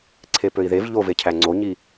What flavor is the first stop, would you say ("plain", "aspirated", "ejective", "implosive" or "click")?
click